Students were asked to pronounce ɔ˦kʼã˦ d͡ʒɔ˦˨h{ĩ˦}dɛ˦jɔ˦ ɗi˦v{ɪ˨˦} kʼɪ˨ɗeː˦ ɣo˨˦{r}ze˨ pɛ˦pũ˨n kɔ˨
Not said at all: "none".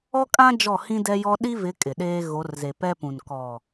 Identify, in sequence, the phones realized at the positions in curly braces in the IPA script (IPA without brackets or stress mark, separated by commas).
ĩ˦, ɪ˨˦, r